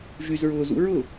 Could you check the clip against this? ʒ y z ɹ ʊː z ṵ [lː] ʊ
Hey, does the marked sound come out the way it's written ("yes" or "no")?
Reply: no